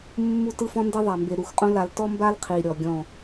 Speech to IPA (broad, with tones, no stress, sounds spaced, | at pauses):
mː u˦ t ɯ˦ f ɔ̃˦ n d e˦ ðˤ a˨ m b e˨ ɾ u˨ x qʼ õ˦ l a˨ l t ɔ˦ m b a˦ l qʰ i˨ ɾʲ ɔ˨ ɡʲ ɔ̃˦˨